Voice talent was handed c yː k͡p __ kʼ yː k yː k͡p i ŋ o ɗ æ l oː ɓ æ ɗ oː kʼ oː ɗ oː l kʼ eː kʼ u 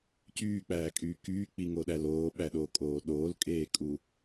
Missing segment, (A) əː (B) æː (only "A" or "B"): B